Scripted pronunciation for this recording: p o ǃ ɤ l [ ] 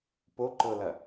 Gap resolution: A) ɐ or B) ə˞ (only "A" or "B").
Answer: A